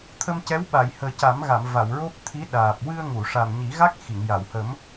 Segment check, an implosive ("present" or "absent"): present